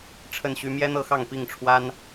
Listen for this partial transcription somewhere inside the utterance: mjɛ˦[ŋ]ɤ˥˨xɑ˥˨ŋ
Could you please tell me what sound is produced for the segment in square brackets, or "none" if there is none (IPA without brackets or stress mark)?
n̪